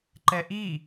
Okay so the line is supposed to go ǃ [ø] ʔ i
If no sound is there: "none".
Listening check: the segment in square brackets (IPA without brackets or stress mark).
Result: ɛ